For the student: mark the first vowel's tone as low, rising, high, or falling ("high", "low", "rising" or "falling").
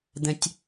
high